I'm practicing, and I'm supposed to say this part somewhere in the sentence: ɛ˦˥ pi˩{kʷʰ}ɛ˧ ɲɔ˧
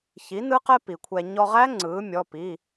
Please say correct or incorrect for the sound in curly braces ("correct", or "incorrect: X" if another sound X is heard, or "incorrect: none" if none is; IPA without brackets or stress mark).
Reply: correct